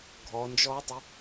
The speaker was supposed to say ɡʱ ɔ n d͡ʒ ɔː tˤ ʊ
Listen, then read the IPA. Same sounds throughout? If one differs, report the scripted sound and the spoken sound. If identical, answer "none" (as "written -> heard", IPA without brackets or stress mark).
none